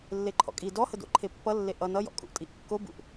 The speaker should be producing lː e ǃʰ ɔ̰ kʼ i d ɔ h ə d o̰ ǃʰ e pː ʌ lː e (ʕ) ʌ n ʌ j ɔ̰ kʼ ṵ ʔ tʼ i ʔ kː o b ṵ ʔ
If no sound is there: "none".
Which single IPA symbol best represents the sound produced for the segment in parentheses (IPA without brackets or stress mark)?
ʔ